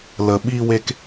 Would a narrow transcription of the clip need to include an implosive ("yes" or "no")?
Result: yes